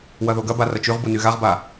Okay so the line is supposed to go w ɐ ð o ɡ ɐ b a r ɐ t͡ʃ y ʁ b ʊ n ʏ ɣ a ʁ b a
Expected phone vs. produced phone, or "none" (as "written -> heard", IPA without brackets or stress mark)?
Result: ʏ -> y